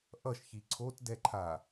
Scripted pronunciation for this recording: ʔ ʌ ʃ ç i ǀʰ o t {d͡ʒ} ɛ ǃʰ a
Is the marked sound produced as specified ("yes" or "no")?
no